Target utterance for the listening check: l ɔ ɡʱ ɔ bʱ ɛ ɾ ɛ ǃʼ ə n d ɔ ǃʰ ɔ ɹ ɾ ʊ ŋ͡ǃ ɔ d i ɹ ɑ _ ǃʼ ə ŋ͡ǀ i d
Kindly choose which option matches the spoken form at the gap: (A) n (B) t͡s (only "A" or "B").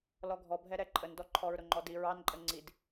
A